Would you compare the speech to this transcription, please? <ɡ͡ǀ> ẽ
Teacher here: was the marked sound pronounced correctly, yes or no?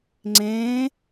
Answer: no